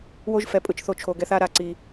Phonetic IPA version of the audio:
w o˦ ʒ f ɛ˨ pʼ ɯ˧ t͡ʃ θ o˧ t͡ʃʰ o˧ ɡ ɛ˦ θ a˦ ɾ a˧ ǀ i˧

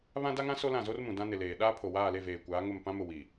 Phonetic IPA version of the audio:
β ã˦ d a˦ ŋ ã˦ s o˦ l ã˦˨ z o˦ r m ũ˨ d ã˦ n ɪ˨ l eː˨ ɗ aː˦ pʰ o˨ w aː˦˨ l e˦˨ v eː˨ kʷ aː˨˦ ŋ ʊ˦˨ m p ã˦ m ʊ˨ w i˨

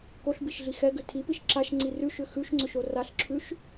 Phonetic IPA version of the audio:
k o ɬ b i ʃ ɮ i x ɛ ɡ ʏ tʰ i p i ʃ ǁ a ʃ ŋ͡ǀ i r ʉ ʃ ʏ x ʉ ʃ ŋ͡ǀ ʏ ʃ o r a ɬ ǁʰ ʉ ʃ

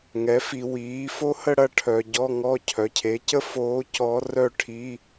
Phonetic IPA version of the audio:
ŋ ɛ˩˥ f i˨ w iː˩˥ f o˥ h ə˥˨ ɽ ɐ˥˨ ʈʰ œ˨ ɟ ɔ˧˥˧ ŋ ɔ˧˥˧ cʰ œ˩˥ cʰ e˩˥ c ə˥ f oː˧˥ c ɔ˧˥ r œ˥˨ ʈʰ i˧˥˧

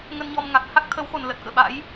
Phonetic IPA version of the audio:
ŋ ə˧ n ɲ ɔ˧ m ŋ a˨˩ k̚ h a˦˥ k̚ t̪ʰ ə˨˦ w x o˨˩ n l ə˨˩ t̚ k ə̰ː˧˨ ɓ a̰˧˥ j

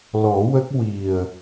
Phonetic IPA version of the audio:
l ɔ˨˩˦ w ə˦˥ k̚ w i˨˩ ə̯

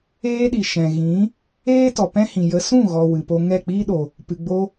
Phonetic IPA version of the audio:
eː˦ ɗ i˨ ʃ ɛ̃˨ ɣ ĩ˨˦ | eː˦ t ɔ˨ p ɛ̃˦ h ĩ˨ j ə˧ s ũ˦˨ ɣ ɔ˨ w ɨ˨ p o˧ ŋ ɛ˦˨ k͡p iː˦ ɗ o˨ | p ɨ˨ ɡ͡b o˧

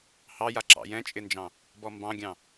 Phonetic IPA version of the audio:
h ɑ j a ǁ ɑ̰ j ɛ̃ t͡ʃʼ ɪ n d͡ʒ ɑ̃ | b ɔ m b ɑ̃ ɡʲ ɑ̃

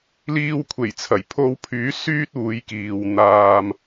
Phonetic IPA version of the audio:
l iː˧ w kʷʰ e˨˩ j t͡sʰ ɐ˨˩ j pʰ o˧ w pʰ yː˨˥ s yː˥ t̚ uː˨˧ j k iː˨ w n̪ aː˧ m

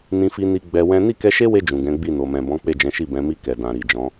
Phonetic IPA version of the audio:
n ĩ˧ f i˧ n i˧ ɡ͡b ɛ˧ w ɛ̃˦ n i˦˨ k ɛ˧ ʃ e˦ w e˧ d͡ʒ ũ˨ ɡ ɛ̃˨˦ ɡ͡b i˦˨ n o˨ m ɛ̃˨ b ɔ̃˨˦ k͡p e˦˨ d͡ʒ ɛ̃˨˦ ʃ i˦˨ b ɛ̃˨˦ m i˧ k ɛ˨ d ã˨ ɾ i˨ d͡ʒ ɔ̃˨˦

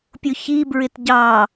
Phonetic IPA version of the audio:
pʲ ʊ ç i b ɹ ɪ t ɟ ɑ

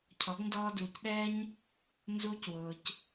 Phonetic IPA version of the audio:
cʰ ɔ˨˦ ɡ n d ɔː˧ d uː˨ c ɗ ɛː˦ ɲ | n z uː˧ c w ʊː˨ c

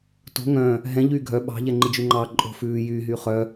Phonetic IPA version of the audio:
t o̤ ŋ œ̃ | ɦ ɛ̃ ʎ yː ɡʱ œ ɓ ɑ̤ ʎ ɛ ŋ͡ǃ i d͡ʒ ʉ ŋ͡ǃ ɑ ǃʼ o̤ f ʉː j yː ɦ yː χ œ

